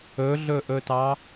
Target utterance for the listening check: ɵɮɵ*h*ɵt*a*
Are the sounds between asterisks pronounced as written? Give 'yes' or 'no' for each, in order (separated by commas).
no, no